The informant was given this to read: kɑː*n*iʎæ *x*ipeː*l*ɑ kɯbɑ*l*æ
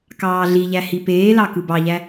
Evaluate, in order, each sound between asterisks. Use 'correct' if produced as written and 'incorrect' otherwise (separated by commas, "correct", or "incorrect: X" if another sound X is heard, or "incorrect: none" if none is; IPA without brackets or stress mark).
incorrect: ɮ, incorrect: h, correct, incorrect: ʎ